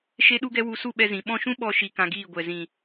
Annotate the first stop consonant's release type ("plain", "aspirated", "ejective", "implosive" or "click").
implosive